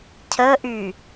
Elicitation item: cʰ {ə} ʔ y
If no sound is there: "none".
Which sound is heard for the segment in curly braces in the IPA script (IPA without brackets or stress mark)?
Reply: ə